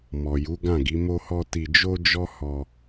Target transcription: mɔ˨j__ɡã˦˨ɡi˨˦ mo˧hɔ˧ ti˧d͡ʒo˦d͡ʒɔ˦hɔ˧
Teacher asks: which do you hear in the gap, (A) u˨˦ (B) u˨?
A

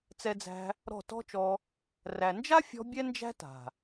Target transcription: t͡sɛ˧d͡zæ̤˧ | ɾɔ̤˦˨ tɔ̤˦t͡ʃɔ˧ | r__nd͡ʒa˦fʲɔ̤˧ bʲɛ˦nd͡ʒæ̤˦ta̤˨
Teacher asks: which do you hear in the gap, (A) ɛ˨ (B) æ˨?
B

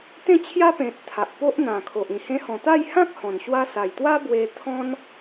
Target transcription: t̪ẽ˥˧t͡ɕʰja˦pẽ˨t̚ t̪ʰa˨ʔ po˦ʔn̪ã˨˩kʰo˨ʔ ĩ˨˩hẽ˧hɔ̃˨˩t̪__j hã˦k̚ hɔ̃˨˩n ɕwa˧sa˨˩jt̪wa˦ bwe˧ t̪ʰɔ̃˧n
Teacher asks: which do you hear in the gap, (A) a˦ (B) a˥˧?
B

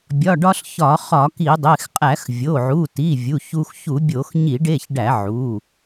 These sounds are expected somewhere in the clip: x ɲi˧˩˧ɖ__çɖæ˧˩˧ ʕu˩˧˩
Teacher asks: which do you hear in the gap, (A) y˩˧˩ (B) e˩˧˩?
B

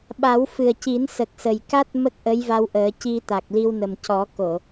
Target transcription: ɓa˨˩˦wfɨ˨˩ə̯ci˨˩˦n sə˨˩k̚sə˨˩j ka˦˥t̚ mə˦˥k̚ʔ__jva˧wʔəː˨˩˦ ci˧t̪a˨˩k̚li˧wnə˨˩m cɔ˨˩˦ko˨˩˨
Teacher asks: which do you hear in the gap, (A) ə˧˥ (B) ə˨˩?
A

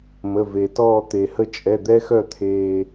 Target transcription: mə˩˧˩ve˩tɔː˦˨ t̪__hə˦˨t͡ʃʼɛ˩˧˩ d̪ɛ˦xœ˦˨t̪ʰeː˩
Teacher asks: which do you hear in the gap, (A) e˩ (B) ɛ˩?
A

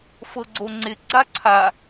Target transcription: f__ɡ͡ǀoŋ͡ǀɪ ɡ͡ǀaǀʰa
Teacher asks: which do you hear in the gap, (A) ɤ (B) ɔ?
A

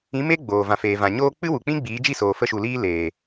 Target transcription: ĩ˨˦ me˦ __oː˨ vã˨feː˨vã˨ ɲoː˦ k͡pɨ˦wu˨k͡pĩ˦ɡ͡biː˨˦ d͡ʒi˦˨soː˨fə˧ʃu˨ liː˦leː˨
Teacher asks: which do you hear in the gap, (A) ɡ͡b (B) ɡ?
A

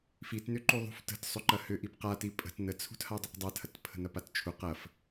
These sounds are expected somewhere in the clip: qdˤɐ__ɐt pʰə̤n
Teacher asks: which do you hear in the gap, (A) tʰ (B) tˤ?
A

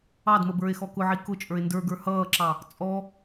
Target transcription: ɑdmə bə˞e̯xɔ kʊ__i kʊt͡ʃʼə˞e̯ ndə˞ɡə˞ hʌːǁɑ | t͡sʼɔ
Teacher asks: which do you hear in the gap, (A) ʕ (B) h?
A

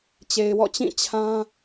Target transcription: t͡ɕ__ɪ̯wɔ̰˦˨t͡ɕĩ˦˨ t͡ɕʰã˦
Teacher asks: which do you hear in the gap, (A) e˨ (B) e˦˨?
A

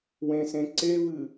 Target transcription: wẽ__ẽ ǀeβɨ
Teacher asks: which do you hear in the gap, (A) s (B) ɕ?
A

